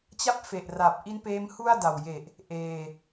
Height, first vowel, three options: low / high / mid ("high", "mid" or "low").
low